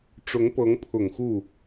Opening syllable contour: rising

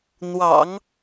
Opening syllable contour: low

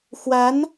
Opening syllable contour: rising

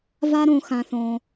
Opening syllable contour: high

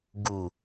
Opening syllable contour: low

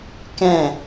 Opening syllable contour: falling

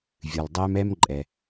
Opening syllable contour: low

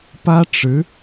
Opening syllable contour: high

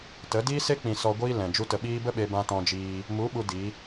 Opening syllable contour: rising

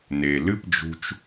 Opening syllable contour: low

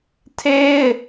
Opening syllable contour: high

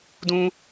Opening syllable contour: high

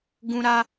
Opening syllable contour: high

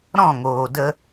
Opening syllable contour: falling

